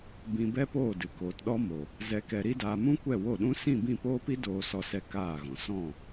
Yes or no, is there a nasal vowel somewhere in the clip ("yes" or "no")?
yes